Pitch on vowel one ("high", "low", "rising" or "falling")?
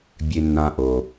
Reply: low